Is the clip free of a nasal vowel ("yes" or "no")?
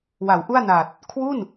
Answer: yes